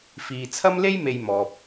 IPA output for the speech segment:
fiː˨ t͡sʰɐ˥mle˥jme˨j mɔː˨p̚

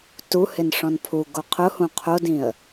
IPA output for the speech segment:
tuhɪn ʂɔ̃npʰuɡo qʰʊhũ qʰodĩə̯

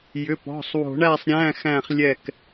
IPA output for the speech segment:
jʏ˩˧˩pɔ̤˩˧˩sˤwo̤˨˩˦ɳæ˦˨sˤ ɾʲæ̃˧˥˧xæ̃˦˨χ lʲɛ˦˨k

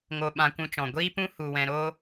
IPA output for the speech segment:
ŋo˧ɓã˧kʷũ˧t͡ʃɔ̃˨ ɡʷiː˦pũ˦ hu˧wɛ̃˧ɾo˦

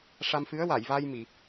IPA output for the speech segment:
ʂa˧m fɨ˧˥ə̯wa˨˩˨jva˧j mi˨˩˨

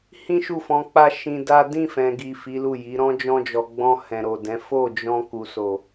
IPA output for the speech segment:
hĩ˦ʃu˦˨fɔ̃˧ k͡pa˦ʃĩ˧da˦ dĩ˦˨fɛ̃˨ɡi˨ fi˨˦lu˦˨ji˨˦ ɾɔ̃˦d͡ʒɔ̃˧d͡ʒɔ˨ ɡ͡bɔ̃˧ hɛ̃˨ɾo˨dɛ̃˨˦ fo˦˨d͡ʒɔ̃˧ ku˨so˨

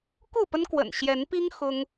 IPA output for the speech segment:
ku˥˨pə˦nkwə̰˨˩n ɕjɛ˨˦npi˦ŋ xʊ˦ŋ

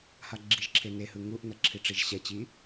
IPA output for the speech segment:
haɡ͡ǁiʒǁʰe nehɯ ŋuʔnʌ ǁʰiʈ͡ʂiʒɕɛt͡ɕi

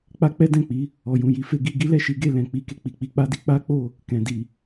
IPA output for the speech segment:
k͡pa˦k͡pɛ˦ dɛ̃˦˨k͡pi˨˦ | ɔ˨jũ˨ji˨˦fe˧ ɡi˧ɡi˦ lɛ˦˨ʃi˨˦ɡe˧ lɛ̃˨k͡pi˧ ke˨k͡pi˨k͡pi˧ k͡pa˦di˧ k͡pa˦k͡po˦˨ | kɛ̃˨di˨

